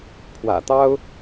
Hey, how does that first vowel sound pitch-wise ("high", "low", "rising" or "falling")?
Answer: low